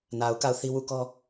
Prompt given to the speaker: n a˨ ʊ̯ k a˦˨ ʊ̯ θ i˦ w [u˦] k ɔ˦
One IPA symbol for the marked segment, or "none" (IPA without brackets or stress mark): u˦˨